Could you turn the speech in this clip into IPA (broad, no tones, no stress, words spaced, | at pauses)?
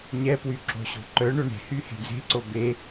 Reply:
ɲɛpwy ǁo̤ɕo̤ǃœɳo ɳe̤hy he̤d͡ze̤ǀo be